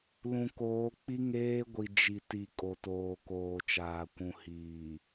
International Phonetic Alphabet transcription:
l ũ˨ k oː˨˦ k͡p i˦ ŋ eː˦ ɡʷ i˨ d͡ʒ i˨ t i˨ kʼ o˨ t oː˨ k oː˨ t͡ʃ aː˨ kʷ ũ˨ h iː˨

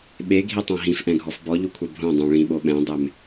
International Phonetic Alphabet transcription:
ɓ e ɡʱ i tˤ ã ɦ ĩ f ʔ ɛ̃ ɡʱ ɔ f b ɔ ʎ u kʷʰ ɛ bʱ õ dˤ õ ɭ ĩ ɓ o ɓ ɛ̃ dˤ e m

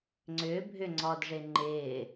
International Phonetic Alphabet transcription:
ŋ͡ǀ ʏː bʱ ʏ ŋ͡ǀ ɔ d ʐ ɪ ŋ͡ǃ ɪː

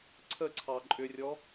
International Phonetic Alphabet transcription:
ǀʰ ə ǀʰ ɑ ǃʼ ʏ rʲ ɔ

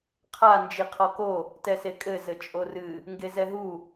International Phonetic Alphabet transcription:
qʰ a n d͡ʒ i qʰ ɔ k o | t ɛ s e kʼ ɘ z ɘ t͡ʃʼ o r ɨ | ŋ ɡ e z ɛ ɦ u

